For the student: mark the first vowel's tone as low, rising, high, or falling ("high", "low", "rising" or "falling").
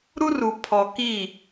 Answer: high